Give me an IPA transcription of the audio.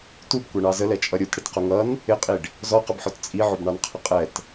t u b kʷ ɛ ɳ ɑ z ə l ɛ t͡ʃʼ ʌ ɾʲ u t ɽ ɪ t q ʊ ŋ ʌ n | ɪ qʼ i ɖ | z ɔ q ə b ħ ɔ t t͡sʼ i ʕ ʊ b ɳ ɑ n qʰ ə qʼ ɛ t

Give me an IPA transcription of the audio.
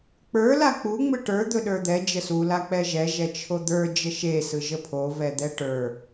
k͡p ə˞ l a k͡p u ŋ͡m ɯ ʈ ə˞ d̪ ɵ ɗ ə˞ d̪ ɛ d͡ʒ ə s u l a k͡p ɛ ʒ ɛ ʒ ɛ t͡ʃʰ o d̪ ə˞ d͡ʒ ə ʃ e s ɯ ʒ ə pʰ o v ɛ d̪ ɛ ʈ ə˞

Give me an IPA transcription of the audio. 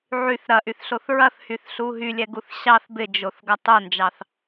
ʕ y θ ɾ ɐ ʔ y θ ɬ o θ ɹ ɐ θ h y θ ɬ u ɦ y lʲ ɛ ɡ u θ ɕ ɑ θ b ɪ d͡ʒ o θ ɡ ɐ tˤ o n d͡ʒ ɑ θ

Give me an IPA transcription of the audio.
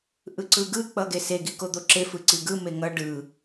ʔ ɯ ǀ ɯ ɡ ɯ k͡p ʌ ɡ e s e ɡ i k o d̪ o ǁ e f ɯ ǀ i ɡ ɯ m e ŋ ʌ ɖ ɯ

